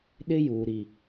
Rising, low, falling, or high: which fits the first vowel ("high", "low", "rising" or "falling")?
high